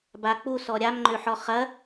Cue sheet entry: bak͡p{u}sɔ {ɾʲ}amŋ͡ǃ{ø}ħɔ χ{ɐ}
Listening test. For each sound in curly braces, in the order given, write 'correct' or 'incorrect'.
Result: correct, correct, correct, correct

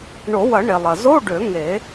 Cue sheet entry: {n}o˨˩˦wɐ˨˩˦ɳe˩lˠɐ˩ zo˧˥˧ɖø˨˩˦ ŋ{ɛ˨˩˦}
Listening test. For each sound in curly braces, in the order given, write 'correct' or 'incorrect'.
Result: incorrect: ɳ, incorrect: e˨˩˦

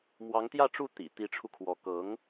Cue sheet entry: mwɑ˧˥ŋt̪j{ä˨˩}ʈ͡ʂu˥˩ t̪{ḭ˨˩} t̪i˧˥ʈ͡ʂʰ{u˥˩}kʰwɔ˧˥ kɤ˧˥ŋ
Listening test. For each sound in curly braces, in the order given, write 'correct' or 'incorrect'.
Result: incorrect: ä˥˧, correct, incorrect: u˧

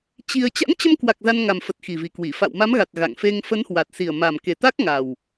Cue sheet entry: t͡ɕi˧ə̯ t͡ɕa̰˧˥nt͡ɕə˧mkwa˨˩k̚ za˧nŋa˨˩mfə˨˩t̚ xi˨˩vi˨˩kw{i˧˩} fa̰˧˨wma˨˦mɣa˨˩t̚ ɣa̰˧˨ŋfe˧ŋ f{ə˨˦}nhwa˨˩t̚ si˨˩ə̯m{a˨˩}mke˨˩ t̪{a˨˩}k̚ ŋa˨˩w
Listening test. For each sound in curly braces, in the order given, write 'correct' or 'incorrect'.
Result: correct, correct, correct, incorrect: a˦˥

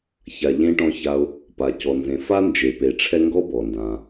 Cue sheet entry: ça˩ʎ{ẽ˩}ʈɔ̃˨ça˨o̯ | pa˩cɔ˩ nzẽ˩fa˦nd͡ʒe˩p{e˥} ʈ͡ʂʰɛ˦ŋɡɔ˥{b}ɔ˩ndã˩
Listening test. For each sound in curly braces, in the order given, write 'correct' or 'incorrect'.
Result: incorrect: ẽ˨, incorrect: e˩, correct

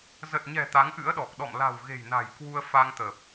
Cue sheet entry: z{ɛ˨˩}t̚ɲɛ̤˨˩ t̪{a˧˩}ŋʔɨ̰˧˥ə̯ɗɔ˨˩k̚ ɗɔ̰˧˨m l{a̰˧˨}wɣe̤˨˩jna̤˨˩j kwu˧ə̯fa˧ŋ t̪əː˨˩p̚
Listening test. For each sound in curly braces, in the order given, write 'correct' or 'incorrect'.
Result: incorrect: ə˨˩, incorrect: a˨˦, incorrect: a̤˨˩

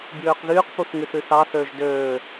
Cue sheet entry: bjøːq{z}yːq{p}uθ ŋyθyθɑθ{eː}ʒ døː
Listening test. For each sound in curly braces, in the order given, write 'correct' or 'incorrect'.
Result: incorrect: ð, correct, incorrect: øː

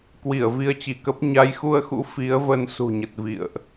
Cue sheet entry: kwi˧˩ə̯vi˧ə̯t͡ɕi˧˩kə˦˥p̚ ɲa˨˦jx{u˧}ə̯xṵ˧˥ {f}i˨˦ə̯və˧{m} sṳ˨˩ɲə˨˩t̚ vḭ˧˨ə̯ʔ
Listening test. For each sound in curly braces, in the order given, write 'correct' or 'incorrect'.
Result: correct, correct, incorrect: n

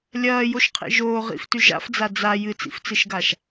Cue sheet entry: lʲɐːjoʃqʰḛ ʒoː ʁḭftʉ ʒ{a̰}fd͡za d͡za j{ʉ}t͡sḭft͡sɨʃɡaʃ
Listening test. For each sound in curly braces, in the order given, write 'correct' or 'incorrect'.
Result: correct, incorrect: ɨ

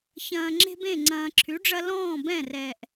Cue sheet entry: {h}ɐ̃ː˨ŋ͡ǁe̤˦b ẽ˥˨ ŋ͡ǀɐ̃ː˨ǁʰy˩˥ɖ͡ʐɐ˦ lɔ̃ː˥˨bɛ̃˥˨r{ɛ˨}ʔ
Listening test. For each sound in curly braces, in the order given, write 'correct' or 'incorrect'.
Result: incorrect: ç, correct

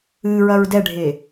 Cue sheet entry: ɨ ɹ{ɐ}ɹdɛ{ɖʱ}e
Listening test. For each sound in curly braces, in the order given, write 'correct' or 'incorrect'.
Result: correct, correct

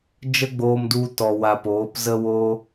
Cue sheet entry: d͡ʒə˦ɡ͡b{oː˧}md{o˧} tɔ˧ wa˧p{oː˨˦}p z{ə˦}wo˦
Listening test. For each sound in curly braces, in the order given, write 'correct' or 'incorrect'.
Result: correct, incorrect: u˧, correct, correct

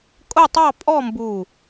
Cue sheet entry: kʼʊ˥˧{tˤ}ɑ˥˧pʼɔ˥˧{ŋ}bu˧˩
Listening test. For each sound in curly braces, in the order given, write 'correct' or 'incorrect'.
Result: correct, incorrect: m

